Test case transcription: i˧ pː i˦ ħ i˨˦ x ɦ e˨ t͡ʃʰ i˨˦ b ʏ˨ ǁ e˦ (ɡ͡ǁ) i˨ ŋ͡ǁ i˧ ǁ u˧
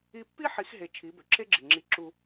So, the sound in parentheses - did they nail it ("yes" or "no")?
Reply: yes